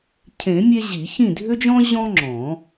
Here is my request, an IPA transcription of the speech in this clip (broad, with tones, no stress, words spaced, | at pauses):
cʰẽ˨˩˦mʲe˧ ʑi˨˩˦çĩ˥˨dʱʏ˥d͡ʒɔ̃˥ ʑɔ̃˥ŋ͡ǁɔ̃˨˩˦